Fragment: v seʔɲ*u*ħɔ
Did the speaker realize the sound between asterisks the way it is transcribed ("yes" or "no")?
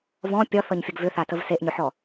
no